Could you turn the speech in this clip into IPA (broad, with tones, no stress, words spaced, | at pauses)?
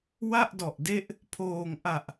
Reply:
wa˥˩ʔdɔ˨˩ʔde˦˥ʔ | pʰoː˨˩ŋ ʔa˨˩ʔ